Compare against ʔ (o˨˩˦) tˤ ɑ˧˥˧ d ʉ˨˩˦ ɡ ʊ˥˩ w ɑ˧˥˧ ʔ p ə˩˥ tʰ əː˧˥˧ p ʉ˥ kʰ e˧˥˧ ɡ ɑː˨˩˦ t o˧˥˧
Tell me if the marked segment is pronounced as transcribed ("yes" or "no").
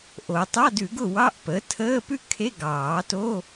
yes